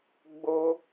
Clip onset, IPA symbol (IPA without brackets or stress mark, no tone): ɡ͡b